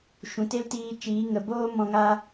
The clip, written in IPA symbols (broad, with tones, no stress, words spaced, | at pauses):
ʃũ˨te˦ltiː˧ t͡ʃiː˨˦ ŋə˨boː˦ mɔ̃˧ŋa˦